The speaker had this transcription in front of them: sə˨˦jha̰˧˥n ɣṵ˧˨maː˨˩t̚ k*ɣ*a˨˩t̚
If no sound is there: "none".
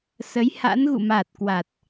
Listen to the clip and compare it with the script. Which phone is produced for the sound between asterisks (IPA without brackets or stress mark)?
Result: w